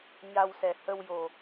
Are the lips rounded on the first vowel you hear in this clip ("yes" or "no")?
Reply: no